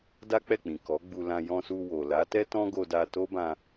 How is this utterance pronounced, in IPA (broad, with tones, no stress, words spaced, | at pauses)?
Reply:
da˦k͡pɛ˦˨k͡pĩ˨ kɔ˨˦ɡ͡bu˧lã˧ jɔ̃˧su˧ wo˨la˨˦ tɛ˦tɔ̃˦ɡo˧da˧ to˦bã˧